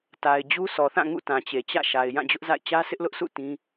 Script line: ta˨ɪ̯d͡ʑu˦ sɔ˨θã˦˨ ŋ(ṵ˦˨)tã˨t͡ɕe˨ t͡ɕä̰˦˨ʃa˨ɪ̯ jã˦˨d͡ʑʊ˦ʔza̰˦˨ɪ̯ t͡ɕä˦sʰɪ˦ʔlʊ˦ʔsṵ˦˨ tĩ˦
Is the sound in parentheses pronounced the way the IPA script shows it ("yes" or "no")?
yes